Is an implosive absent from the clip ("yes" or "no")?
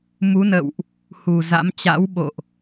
no